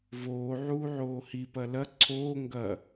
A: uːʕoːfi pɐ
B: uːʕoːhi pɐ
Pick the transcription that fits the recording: B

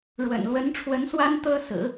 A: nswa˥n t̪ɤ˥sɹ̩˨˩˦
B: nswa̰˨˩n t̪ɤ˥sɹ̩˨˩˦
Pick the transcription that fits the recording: A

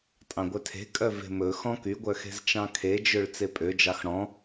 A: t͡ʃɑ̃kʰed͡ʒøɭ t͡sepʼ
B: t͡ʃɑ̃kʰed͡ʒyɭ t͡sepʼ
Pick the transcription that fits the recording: A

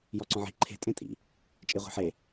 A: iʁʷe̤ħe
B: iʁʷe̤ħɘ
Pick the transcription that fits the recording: A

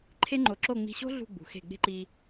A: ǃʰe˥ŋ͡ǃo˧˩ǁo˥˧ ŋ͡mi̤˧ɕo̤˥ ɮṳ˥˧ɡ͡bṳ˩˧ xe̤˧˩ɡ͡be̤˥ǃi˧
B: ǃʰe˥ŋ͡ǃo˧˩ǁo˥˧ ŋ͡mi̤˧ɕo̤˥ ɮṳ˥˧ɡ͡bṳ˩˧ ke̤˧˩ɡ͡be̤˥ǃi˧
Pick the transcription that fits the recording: A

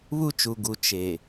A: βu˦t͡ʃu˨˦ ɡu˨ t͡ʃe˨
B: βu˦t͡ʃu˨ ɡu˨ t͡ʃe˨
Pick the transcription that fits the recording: B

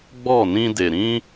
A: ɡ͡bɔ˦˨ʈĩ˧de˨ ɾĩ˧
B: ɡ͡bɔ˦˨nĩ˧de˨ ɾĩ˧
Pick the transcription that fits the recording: B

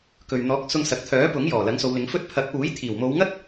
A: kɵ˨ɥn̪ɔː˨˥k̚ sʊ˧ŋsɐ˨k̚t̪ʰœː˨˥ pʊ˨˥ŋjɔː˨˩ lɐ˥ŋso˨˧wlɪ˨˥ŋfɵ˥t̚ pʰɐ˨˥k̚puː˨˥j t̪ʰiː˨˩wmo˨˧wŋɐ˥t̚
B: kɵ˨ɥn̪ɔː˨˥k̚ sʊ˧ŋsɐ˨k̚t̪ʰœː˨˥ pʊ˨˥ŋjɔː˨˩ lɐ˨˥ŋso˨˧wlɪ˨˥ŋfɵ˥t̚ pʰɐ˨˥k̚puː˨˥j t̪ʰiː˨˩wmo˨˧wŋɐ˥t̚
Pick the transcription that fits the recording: B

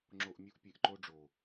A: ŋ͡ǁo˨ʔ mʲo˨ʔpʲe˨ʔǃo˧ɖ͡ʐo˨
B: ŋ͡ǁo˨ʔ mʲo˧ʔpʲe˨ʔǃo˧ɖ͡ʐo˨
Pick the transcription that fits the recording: B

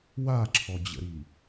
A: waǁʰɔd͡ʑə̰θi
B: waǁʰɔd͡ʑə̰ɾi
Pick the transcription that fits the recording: B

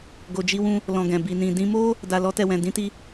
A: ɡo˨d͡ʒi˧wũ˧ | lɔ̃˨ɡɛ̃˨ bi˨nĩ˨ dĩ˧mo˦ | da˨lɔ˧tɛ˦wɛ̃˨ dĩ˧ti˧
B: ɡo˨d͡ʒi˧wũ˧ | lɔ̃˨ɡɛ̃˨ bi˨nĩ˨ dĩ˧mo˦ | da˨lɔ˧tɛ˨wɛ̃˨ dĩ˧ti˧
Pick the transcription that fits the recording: B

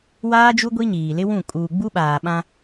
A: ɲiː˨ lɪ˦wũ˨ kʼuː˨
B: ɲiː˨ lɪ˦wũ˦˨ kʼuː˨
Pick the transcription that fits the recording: B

